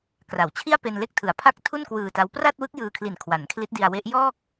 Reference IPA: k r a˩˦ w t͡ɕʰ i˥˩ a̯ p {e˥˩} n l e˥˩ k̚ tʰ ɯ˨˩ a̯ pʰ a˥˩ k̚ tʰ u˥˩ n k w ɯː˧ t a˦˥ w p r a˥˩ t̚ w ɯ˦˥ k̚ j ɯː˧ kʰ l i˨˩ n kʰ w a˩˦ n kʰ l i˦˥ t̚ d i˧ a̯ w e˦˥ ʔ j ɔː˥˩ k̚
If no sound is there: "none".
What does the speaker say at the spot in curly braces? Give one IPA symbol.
e˧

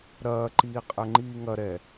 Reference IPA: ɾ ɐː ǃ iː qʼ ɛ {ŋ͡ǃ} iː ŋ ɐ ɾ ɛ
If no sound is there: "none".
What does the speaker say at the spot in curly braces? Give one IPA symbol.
ŋ͡ǃ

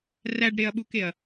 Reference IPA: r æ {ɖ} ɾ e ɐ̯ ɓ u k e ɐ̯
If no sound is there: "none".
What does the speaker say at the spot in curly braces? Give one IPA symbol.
ɖ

